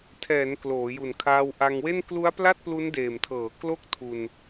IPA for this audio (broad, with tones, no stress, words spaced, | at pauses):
tʰɛː˩˦n kloː˩˦ju˨˩nkʰaː˧w ʔa˧ŋwe˥˩n klu˦˥a̯ pla˥˩t̚plu˦˥ndeː˨˩mtʰɤː˩˦ klo˥˩k̚tʰu˧n